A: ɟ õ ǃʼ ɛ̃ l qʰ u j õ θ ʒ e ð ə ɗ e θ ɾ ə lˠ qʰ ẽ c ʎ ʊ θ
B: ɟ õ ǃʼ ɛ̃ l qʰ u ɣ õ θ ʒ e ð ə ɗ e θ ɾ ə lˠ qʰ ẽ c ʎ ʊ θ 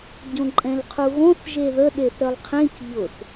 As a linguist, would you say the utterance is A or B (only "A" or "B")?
B